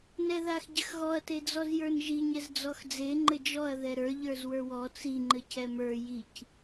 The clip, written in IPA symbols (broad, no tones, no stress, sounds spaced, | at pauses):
n ɛ ð a x ɟ ɘ x ɣ ɔ ɐ̯ t e d͡z ɔ z j ə˞ n ʒ i ɲ ɛ z d͡z ɔ x d͡z e ŋ͡ǃ ɘ d͡ʒ ɔ ɐ̯ ð ɛ ɾ ə˞ ʎ ə˞ z w ə˞ w ɔ t͡s i ŋ͡ǃ ɘ c ɛ m ə˞ j i c